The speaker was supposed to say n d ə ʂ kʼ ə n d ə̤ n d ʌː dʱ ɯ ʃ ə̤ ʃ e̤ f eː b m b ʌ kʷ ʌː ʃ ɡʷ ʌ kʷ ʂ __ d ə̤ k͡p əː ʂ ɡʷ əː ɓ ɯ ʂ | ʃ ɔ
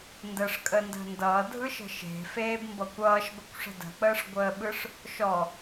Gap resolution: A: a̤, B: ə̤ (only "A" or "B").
B